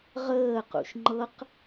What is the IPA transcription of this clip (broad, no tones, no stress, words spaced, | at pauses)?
ʁəːqṵʃ ŋ͡ǃɤq